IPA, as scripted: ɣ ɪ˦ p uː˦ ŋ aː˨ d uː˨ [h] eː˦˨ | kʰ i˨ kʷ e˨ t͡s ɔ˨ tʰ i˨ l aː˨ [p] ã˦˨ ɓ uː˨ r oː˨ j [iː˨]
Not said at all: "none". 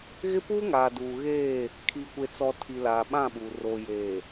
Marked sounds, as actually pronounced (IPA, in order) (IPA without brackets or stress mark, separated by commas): ɣ, ɓ, eː˨